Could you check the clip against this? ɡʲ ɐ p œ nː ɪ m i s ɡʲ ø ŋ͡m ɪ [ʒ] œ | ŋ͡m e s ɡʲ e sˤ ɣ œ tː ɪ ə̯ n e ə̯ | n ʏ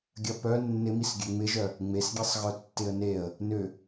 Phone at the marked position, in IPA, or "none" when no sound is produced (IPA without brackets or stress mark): ʒ